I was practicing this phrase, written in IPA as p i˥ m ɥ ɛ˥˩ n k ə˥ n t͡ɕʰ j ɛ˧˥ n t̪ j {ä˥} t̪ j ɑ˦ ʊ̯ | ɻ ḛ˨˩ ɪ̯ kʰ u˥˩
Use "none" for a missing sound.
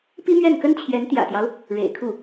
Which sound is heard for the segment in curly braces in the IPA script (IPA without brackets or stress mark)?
ä̰˨˩